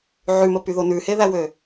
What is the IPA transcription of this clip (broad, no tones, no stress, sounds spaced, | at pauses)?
ʕ ʉ m ə p y ð o n ʉ h e ð æ w ø